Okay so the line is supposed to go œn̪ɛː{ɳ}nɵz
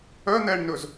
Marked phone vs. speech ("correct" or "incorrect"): correct